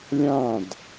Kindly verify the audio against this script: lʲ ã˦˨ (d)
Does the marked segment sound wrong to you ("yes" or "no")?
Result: no